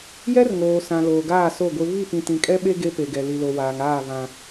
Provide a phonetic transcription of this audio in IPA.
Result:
j ɛ˦ r ŋ oː˨ s ã˨ l oː˨ ɡ aː˦˨ s o˦˨ ɡʷ e˦ β i˦˨ p ĩ˨ t ĩ˨ kʼ ɛ˦ ɓ e˦ ɡ e˦ p e˨ ɡ ɛ˨ l i˨ l o˨ w aː˨ ŋ aː˦˨ β ã˦

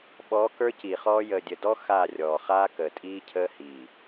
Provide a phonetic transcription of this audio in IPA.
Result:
ɓ ɔ˨˦ k ə˞˦ c iː˨ χ ɔː˦ j əː˨ dʲ ə˨ d ɔ˦ x aː˦˨ rʲ ɔː˨ χ aː˦ k əː˨ tʼ iː˦ cʰ əː˦ h iː˨

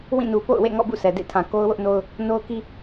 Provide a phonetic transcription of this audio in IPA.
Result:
w ĩ˦˨ n u˨ p o̰˦˨ ʊ̯ w ḛ˦˨ ŋ ɔ̰˦˨ b ṵ˦˨ sʰ ɛ˨ d ḛ˦˨ tʰ ã˨ k o˦ ʊ̯ w ʊ˦ ʔ n o˦ ʊ̯ | n o˦ ʊ̯ k i˦

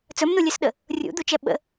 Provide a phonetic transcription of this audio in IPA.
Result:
t͡s ɵ m n u lʲ ø s ɗ ə | rʲ ṵ d̪ u t͡ʃ ɛ ɓ ə̰

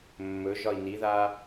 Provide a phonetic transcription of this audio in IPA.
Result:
mː ɵ ʒ ɒ i̯ n i ð a

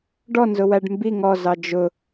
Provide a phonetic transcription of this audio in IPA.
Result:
ɖ ɔ n z ʊ w æ ɖ m b i ŋ ɔ z ɑ d͡ʒ ʊ

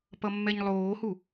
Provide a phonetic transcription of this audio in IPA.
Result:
p ʌ mː ɛ ɲ lˠ oː h u

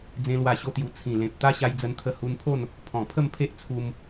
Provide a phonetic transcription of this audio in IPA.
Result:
d͡z ẽ˦ l w a˥˧ ɕ o˥˧ t̪ j u˧ t͡sʰ ĩ˨˩ l ẽ˨ p̚ t̪ a˦ ɕ a˧ j d͡z ə˧ n t̪ʰ ə˧ h u˧ n pʰ o˥˧ n | pʰ ɔ̃˨˩ pʰ ə˥˧ m pʰ e˦ ʔ t͡sʰ u˧ m

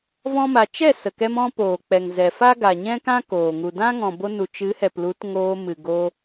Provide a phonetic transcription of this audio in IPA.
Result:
v ɔ̃˦ m a˧ t͡ʃ ɛ˦˨ s ə˨ k ɛ˧ m ɔ̃˧ p oː˨ k͡p ɛ˨ ŋ z ɛ˨ f a˦ ɡ a˨ ɲ ɛ̃˦ k ã˦ k oː˨ ŋ u˨ d ã˦ ŋ ɔ̃˨ b o˧ n u˨ t͡ʃ ɨ˨˦ h ɛ˨ p l u˨˦ t ŋ oː˧ m ɨ˨ ɡ o˧

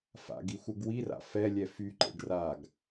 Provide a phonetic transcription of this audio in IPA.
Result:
f a̰ ɡ i xʷ ə ɡ w i r a̰ f ɛ lʲ ɛ f y ǃ ḛ ɖ r a ɡ

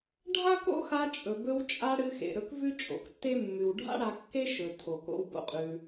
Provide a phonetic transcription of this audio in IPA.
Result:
ɖʱ a˦ k o̰˦ x a˧ t͡ʃʼ ɵ˨ b ɵ˧ w t͡ʃʼ a˧ ɽ ɨ˧ x ḛ˨ ɾ ɵ˧ k v ʉ˦ t͡ʃʼ o̰˨ k tː e˦ mː ʉ˨ w ɖʱ a̰˦ ɽ a˧ kː e˦ ʃ ɵ˨ tʰ o˨ k o̰˦ w b o̰˦ qʼ ʉ˧

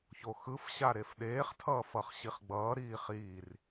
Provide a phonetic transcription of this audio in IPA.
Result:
ç o x ɯ f ɕ a ɾ e f ɗ eː χ tʰ ʌː f ʌ χ ɕ i χ ɡ͡b ʌː ɾ iː χ iː r

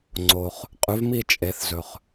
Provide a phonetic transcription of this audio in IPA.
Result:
ŋ͡ǀ o˨ χ | qʼ ʉ˨˩˦ v m i˦˨ t͡ʃʼ e˨˩˦ θ z ɵ˨ χ

